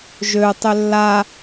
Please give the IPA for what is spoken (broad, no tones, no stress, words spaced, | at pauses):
ʒø tˤʏlːa